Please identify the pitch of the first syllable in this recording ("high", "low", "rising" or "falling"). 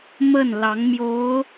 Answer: falling